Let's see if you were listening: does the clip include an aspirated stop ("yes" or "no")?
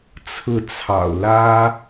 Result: yes